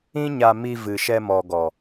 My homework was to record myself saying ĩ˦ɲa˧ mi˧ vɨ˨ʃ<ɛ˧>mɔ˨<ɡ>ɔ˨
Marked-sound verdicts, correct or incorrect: correct, correct

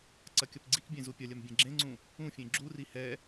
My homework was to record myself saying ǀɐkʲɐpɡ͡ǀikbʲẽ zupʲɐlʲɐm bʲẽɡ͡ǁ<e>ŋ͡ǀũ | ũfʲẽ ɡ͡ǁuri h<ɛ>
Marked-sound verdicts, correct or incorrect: incorrect: ẽ, correct

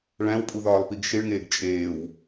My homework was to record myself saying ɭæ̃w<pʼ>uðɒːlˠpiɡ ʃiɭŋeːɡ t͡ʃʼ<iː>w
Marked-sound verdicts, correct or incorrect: correct, incorrect: eː

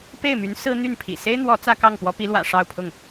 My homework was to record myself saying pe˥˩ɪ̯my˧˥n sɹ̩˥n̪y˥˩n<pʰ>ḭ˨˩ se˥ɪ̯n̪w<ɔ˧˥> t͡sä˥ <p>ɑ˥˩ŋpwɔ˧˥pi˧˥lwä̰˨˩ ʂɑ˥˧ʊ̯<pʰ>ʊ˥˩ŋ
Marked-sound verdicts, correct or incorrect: correct, correct, incorrect: k, correct

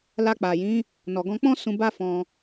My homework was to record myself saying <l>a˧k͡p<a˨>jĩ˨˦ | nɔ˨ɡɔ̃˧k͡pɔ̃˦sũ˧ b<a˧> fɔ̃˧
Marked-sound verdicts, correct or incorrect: correct, correct, incorrect: a˦

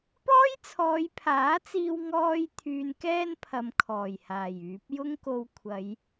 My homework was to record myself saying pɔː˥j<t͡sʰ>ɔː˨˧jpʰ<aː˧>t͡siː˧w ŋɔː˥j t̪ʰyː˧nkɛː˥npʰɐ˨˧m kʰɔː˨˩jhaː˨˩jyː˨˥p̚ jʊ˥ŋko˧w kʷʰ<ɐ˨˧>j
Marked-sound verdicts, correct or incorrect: correct, incorrect: aː˨˥, correct

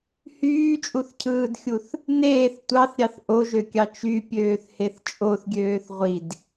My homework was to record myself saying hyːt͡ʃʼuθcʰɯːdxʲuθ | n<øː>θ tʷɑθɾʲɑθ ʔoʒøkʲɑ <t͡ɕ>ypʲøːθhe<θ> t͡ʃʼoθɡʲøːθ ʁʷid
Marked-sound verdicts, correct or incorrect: incorrect: eː, incorrect: t͡ʃ, correct

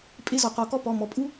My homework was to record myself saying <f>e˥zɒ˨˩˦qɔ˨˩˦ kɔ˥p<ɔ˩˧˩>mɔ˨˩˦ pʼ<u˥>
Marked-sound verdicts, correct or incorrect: incorrect: pʼ, correct, correct

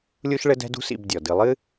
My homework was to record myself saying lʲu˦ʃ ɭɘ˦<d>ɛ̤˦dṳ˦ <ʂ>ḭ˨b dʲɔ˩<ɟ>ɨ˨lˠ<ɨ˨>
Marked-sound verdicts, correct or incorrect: correct, incorrect: s, incorrect: d, incorrect: ɨ˥

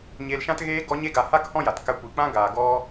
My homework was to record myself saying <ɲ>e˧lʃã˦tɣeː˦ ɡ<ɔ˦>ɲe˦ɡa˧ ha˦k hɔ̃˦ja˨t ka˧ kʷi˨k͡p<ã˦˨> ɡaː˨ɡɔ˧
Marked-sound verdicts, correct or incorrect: correct, correct, incorrect: ã˦

